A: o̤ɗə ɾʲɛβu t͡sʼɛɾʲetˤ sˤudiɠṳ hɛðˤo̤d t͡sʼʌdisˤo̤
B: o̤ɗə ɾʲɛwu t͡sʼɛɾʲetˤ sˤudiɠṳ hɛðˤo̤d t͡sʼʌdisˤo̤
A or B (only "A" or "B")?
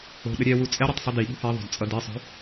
B